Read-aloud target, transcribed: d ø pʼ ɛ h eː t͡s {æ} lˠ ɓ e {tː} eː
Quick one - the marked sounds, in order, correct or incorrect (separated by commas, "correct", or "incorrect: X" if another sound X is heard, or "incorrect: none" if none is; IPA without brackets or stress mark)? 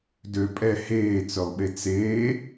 incorrect: œ, incorrect: t͡s